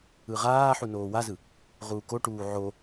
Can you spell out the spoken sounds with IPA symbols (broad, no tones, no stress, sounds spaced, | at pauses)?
ɯ ʁ aː ħ u n oː w a z ɯ | ʁ uː k o ʈ uː ʕ o